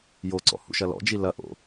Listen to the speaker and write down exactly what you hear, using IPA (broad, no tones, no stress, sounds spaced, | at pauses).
j o ǀ ɔ̰ h ṵ ʃ ɐ l ɔ̰ d͡ʒ i l ɐ ʔ o̰